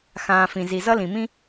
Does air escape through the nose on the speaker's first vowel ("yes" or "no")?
yes